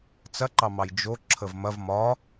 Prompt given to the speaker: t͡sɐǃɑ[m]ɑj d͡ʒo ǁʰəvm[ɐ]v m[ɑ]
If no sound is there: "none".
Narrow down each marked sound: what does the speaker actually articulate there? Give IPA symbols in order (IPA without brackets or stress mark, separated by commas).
m, ɐ, ɒ